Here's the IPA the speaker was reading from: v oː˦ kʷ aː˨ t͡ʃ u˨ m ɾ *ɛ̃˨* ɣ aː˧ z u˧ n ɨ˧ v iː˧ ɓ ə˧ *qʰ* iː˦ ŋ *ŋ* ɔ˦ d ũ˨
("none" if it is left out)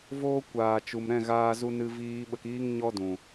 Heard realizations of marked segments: ɛ̃˦˨, k, ɲ

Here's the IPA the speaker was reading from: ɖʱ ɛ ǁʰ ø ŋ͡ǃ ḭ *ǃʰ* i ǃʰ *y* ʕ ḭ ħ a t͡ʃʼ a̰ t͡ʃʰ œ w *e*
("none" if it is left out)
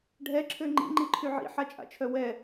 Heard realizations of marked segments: ŋ͡ǃ, y, ɛ

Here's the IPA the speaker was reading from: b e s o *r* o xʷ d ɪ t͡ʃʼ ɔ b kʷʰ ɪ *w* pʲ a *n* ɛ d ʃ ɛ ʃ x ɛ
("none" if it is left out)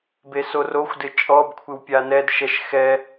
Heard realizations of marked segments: r, w, n

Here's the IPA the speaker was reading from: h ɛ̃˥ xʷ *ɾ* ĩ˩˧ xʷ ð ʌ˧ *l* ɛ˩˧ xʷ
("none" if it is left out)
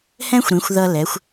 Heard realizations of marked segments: ɾ, l

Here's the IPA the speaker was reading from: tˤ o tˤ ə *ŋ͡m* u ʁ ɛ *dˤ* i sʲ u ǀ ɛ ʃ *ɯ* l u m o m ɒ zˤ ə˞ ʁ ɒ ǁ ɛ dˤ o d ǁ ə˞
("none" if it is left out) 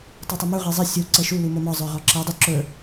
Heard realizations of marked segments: m, zˤ, u

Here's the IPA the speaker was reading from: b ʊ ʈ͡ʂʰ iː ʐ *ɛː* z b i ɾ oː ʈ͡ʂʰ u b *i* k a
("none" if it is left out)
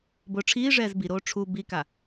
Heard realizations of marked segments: ɛː, i

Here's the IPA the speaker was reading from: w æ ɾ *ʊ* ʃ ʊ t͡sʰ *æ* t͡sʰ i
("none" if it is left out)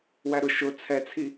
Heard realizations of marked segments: ʊ, ɛ

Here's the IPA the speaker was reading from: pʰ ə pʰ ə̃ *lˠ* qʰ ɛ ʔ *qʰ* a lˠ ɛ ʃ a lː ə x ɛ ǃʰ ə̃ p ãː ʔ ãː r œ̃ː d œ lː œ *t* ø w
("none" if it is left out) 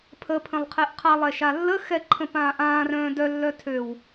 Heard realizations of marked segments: lˠ, qʰ, tʰ

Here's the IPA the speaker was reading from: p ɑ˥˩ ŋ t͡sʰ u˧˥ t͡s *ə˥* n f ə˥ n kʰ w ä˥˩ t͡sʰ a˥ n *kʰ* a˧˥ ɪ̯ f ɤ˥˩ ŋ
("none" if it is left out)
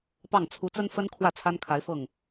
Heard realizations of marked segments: ə˥, kʰ

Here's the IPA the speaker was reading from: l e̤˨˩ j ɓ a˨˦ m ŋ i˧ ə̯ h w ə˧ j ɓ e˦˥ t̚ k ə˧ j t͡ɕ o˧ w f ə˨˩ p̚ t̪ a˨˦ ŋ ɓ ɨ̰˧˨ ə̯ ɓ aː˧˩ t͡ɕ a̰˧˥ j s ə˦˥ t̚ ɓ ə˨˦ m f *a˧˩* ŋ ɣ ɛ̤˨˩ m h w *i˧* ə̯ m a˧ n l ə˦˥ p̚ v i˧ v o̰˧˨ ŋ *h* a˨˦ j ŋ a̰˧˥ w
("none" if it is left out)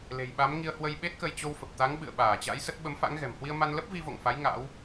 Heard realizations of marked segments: a̰˧˥, i˧, f

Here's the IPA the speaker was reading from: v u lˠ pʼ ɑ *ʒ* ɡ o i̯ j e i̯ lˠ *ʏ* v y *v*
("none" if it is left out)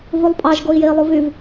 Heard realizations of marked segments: ʒ, u, v

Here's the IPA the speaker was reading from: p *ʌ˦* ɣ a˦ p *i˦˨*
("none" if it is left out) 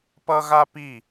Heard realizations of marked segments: ʌ˦, i˦˨

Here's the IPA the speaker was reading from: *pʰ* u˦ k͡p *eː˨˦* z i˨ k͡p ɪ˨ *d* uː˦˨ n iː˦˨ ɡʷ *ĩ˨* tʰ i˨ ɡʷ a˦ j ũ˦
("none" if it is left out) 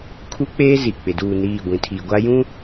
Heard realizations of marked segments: kʰ, eː˦, d, ĩ˨

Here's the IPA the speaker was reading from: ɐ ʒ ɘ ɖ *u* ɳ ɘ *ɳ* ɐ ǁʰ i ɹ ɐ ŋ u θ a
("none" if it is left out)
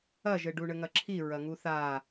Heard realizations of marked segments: u, ŋ

